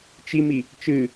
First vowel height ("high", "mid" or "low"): high